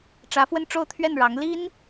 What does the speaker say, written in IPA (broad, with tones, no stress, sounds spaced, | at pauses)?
ʈ͡ʂ ä˧˥ f w ə˥˧ n ʈ͡ʂ o˥˧ ʊ̯ t̪ʰ ɥ ɛ˥˩ n ɻ ɑ˧˥ ŋ l i˥ n